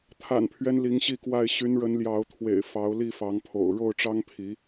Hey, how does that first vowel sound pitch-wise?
low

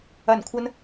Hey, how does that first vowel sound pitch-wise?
low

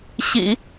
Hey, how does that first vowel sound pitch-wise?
low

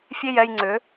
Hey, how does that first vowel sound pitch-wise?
falling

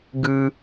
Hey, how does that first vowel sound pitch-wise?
high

